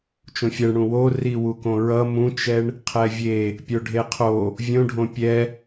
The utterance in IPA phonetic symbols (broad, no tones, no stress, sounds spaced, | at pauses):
t͡ʃ õ fʲ ɛ ɳ ɽ ũ w o r i w u k õ ɹ ʌ m ũ t͡ʃ ɛ ɳ | qʰ ɛ vʲ e | pʲ o ɖʱ e qʰ o | vʲ õ ɖʱ õ pʲ ɛ